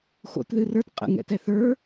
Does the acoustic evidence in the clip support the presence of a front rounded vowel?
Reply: no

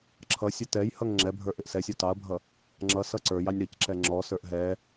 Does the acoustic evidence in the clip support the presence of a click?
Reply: yes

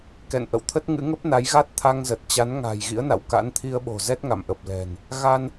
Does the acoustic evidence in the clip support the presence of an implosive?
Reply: yes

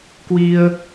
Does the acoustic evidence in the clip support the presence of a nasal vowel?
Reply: no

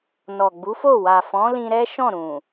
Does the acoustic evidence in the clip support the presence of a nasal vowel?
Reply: yes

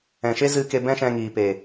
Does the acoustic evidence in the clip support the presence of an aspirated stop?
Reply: no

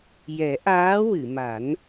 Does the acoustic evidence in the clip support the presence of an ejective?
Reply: no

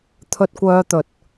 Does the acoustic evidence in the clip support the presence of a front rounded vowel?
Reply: yes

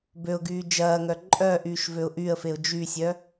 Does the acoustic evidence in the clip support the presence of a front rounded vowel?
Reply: yes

